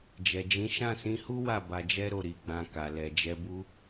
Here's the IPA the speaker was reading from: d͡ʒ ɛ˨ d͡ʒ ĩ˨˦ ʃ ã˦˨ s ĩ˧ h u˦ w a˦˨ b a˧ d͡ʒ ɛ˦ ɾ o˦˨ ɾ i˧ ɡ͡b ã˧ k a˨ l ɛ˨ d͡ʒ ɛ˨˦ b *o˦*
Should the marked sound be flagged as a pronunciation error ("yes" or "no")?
yes